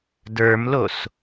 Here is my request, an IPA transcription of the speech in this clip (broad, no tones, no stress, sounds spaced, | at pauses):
d ə˞ m l o s